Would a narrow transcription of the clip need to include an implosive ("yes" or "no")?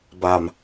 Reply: no